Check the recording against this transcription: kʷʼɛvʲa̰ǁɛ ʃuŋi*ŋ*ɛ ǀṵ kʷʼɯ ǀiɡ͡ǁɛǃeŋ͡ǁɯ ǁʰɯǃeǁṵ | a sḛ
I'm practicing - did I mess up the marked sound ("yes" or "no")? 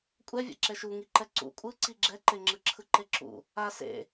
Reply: yes